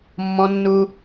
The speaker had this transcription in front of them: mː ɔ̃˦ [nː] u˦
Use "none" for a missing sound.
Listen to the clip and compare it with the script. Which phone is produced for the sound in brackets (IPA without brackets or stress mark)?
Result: nː